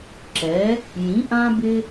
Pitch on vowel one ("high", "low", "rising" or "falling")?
rising